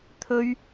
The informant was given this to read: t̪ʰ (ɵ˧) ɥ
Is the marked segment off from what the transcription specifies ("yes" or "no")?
yes